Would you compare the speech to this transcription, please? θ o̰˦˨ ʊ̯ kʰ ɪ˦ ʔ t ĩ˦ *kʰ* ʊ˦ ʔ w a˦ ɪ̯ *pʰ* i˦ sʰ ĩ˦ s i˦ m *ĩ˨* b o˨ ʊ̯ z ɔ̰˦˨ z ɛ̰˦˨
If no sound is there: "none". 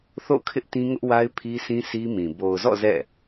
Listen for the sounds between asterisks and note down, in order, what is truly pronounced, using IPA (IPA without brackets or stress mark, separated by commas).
ŋ, pʰ, ĩ˨